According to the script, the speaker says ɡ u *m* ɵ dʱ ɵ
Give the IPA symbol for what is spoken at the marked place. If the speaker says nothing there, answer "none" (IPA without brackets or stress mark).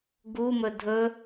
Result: m